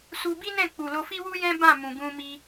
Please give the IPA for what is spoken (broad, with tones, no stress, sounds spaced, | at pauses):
s u˧ b i˦ n ɛ̃˦˨ k͡p u˨ l o˧ f i˦ w u˦ j ɛ̃˦ b ã˦˨ m ũ˨ ɡ ũ˧ m i˧